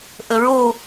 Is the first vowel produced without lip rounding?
yes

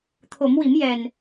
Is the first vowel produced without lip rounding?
no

